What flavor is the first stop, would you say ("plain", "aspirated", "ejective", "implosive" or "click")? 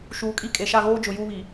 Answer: ejective